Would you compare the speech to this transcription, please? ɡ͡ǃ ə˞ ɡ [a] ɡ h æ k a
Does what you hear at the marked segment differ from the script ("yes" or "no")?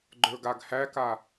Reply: no